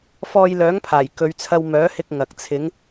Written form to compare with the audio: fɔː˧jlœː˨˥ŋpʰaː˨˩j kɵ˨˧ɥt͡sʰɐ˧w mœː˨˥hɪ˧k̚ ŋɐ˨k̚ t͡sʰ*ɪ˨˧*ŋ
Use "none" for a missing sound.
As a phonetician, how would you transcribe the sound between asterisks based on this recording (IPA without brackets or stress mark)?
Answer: ɪ˨˧